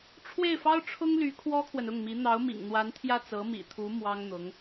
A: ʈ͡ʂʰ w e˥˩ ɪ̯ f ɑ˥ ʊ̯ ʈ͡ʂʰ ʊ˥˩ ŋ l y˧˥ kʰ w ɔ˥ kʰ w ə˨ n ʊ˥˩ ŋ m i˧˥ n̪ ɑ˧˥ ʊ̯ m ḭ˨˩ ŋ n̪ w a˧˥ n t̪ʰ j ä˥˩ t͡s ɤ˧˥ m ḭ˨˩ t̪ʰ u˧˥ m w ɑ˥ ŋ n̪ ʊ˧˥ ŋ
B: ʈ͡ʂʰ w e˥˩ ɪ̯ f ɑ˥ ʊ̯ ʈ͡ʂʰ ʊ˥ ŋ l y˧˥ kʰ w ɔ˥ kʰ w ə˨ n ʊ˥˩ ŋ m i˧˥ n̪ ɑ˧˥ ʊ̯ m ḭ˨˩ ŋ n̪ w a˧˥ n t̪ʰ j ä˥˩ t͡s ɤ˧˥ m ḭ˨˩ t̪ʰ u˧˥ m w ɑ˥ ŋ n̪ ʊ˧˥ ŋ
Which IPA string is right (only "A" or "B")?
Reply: B